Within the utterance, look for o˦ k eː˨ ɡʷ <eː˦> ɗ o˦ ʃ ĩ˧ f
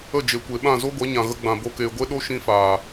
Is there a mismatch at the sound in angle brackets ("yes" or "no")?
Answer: yes